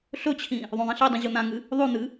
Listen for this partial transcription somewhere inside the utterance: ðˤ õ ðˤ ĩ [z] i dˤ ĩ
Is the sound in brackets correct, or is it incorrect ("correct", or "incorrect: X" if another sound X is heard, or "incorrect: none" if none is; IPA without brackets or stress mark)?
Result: incorrect: ɬ